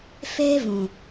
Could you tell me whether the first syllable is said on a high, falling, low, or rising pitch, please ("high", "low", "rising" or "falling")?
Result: high